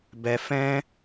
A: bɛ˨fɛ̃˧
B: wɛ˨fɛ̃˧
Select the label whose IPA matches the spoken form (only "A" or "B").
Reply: A